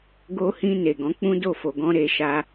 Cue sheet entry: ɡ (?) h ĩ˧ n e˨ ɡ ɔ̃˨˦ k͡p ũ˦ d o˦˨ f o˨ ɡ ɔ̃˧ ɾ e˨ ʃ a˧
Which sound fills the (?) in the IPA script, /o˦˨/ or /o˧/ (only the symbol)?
o˧